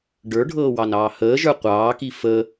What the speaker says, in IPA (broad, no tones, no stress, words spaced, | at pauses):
ɖə˞ɖʱɤːwɑnɑː həːʒə˞ qʷɑːki fə